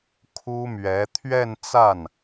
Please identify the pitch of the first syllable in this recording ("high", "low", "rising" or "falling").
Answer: high